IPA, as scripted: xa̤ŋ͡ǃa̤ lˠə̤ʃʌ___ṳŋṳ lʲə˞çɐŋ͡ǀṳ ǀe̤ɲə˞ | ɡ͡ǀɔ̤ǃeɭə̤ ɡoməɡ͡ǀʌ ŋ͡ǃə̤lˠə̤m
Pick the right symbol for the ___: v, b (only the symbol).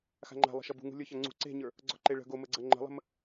b